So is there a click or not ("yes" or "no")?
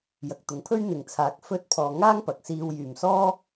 no